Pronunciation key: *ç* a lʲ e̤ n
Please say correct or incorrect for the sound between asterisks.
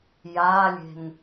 incorrect